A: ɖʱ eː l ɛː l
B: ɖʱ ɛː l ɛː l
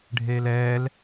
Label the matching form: A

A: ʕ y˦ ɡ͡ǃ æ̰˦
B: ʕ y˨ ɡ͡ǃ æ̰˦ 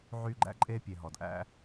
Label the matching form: A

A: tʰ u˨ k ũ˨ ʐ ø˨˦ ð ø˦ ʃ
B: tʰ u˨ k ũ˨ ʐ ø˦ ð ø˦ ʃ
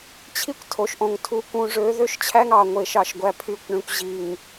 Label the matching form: A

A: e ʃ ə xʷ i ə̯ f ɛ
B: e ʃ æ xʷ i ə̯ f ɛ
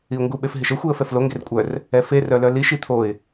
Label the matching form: A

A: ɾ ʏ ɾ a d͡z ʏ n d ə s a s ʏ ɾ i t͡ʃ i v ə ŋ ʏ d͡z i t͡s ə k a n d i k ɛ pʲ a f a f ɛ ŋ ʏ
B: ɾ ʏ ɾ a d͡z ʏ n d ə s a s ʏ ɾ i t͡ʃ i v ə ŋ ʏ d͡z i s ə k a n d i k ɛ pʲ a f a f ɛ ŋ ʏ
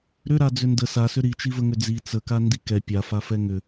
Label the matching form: A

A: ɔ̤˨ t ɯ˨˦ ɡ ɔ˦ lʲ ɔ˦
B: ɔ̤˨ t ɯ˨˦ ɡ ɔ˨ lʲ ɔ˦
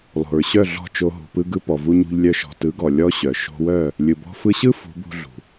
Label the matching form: B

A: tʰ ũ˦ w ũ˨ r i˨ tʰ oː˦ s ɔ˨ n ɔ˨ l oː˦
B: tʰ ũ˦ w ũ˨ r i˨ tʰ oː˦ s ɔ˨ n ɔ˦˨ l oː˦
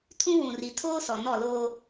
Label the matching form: B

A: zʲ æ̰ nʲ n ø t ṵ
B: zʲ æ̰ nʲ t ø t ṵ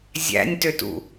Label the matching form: B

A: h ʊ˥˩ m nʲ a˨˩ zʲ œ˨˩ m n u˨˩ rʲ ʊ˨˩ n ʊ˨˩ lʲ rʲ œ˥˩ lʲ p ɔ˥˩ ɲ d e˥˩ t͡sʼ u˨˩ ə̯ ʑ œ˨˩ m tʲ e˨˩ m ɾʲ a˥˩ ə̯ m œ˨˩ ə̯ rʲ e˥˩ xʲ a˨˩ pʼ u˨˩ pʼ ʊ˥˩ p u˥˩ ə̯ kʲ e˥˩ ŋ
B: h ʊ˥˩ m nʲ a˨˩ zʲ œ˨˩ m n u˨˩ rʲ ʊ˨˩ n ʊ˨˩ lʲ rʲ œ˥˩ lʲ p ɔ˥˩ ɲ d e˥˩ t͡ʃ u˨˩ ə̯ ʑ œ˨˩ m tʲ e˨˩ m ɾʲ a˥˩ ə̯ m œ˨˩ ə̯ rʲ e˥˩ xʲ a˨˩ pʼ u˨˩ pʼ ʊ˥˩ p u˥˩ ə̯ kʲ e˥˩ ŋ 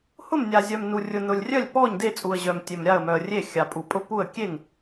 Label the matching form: A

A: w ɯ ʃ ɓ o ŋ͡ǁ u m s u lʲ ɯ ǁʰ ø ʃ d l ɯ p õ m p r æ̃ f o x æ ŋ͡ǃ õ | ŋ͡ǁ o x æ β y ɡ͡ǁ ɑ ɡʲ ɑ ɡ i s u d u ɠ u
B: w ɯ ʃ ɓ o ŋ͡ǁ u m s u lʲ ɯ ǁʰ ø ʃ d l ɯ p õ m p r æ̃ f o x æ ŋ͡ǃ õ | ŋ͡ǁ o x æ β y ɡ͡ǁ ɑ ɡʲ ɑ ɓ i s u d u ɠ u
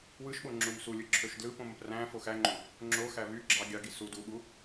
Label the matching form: A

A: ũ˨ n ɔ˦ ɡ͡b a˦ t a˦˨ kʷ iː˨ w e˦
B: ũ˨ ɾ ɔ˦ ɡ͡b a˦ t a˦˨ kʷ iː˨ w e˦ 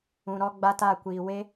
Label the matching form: B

